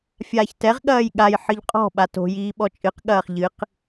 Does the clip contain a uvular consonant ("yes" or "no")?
yes